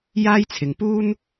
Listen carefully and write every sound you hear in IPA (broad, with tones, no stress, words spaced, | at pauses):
jaː˥jt͡sʰɪ˨ŋ puː˥n